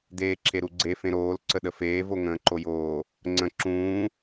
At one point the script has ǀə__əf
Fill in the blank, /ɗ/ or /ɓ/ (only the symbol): ɗ